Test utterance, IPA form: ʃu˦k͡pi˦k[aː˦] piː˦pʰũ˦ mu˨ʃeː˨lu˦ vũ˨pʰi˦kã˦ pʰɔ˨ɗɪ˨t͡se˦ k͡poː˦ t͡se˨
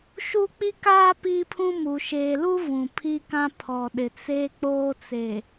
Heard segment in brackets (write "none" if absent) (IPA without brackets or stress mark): aː˦